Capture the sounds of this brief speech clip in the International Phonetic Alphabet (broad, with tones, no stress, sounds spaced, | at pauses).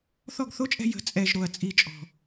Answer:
θ ɔ˦˨ ɡ θ o˦ t͡ʃʼ ɛ̤˧ j ə̤˨ t͡sʼ ɛ˨ ʒ ɾ o˨ ɐ̯ t͡sʼ i˧ t͡ʃʼ ɔ̤˨